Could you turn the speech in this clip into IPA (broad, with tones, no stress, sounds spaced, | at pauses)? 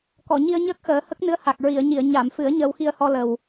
k ɔ˨˩˨ ɲ i˧ ə̯ ɲ əː˦˥ k̚ x əː˨˩˦ h ə˦˥ k̚ n ɨ˧˥ ə̯ h a˨˩ k̚ ɹ i˨˩˨ ə̯ ɲ i˨˩˨ ə̯ ɲ a˨˩˨ m f ɨ˨˩˦ ə̯ ɲ əː˧ w x i˧ ə̯ h ɔ˧ l ə˨˩ w